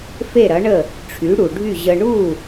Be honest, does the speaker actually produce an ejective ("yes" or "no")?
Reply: no